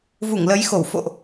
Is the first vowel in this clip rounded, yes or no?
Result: yes